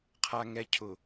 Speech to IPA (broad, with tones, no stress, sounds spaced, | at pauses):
qʰ a˨ ŋ ɛ˨ cʰ ʊ˨